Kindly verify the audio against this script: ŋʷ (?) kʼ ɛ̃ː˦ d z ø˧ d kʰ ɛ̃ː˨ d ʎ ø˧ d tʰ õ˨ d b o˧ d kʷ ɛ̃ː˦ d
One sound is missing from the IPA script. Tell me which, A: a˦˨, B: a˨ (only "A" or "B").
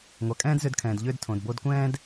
B